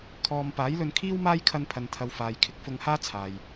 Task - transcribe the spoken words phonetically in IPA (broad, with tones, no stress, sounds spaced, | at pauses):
kʰ ɔː˨ m p aː˨˥ j l ɵ˧ n kʰ iː˥ w m aː˥ j kʰ ɐ˧ n pʰ ɐ˨ n t̪ʰ ɐ˨ w f aː˨ j kʰ ɪ˧ k̚ f ʊ˧ ŋ h aː˥ t͡sʰ aː˨ j